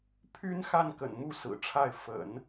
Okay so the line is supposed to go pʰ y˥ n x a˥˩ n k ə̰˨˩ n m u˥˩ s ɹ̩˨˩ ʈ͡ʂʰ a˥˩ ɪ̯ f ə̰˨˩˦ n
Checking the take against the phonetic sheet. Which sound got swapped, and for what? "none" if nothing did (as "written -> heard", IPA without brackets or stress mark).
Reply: none